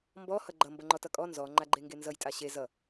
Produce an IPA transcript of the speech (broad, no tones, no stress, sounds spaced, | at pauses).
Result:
m b ɔ h ʌ ɡ͡ǃ ʌ m b ʌ ŋ͡ǃ ɔ t ʌ kʼ ɔ n z ɔ ŋ͡ǃ a ɡ͡ǃ e ŋ ɡ e n z ʌ j tʼ a ɕ e z ʌ